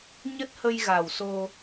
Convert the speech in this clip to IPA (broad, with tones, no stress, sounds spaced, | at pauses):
ɲ ə˦˥ t̚ h ə˧ j ɣ a˨˩ w s o˧